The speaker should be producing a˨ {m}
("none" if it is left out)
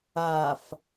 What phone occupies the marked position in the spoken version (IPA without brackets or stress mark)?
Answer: f